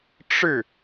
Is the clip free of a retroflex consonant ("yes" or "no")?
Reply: no